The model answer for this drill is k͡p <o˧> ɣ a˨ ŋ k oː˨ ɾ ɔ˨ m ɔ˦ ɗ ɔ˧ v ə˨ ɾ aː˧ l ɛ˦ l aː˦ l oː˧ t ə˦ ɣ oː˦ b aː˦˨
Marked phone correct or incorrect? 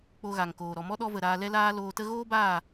correct